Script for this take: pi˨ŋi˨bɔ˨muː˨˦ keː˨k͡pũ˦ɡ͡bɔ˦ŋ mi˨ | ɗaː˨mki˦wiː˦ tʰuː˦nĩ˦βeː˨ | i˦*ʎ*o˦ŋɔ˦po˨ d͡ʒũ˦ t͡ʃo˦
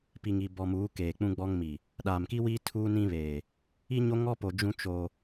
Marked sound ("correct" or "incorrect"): incorrect